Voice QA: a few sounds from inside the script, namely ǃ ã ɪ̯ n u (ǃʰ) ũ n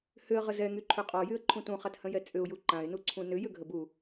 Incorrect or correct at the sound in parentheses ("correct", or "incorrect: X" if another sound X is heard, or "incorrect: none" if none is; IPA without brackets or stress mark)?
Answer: incorrect: ǀʰ